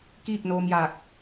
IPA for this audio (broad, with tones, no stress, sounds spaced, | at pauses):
k iː˥˨ k̚ n oː˧ m j aː˧˩ k̚